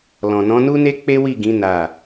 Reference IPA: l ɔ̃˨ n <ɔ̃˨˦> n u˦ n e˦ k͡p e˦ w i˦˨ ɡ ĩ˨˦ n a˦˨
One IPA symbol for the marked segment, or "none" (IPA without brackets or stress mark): ɔ̃˨˦